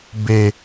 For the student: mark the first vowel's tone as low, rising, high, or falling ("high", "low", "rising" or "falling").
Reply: low